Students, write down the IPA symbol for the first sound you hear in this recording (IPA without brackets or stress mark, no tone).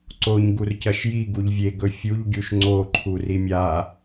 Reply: ǀ